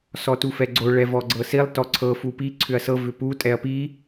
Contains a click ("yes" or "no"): yes